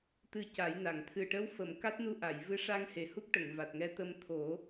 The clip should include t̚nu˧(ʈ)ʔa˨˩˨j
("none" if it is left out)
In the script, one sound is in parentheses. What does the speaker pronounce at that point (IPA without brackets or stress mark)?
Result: none